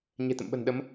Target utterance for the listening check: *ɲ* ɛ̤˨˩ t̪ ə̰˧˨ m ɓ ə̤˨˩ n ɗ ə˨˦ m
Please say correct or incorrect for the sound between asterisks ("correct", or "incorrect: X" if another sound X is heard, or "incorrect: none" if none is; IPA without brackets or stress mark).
correct